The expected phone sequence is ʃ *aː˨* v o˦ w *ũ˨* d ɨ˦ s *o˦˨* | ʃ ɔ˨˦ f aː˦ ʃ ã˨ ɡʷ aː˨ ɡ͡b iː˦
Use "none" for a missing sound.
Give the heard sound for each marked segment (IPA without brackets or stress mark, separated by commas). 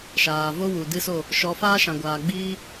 aː˨, u˨, o˦˨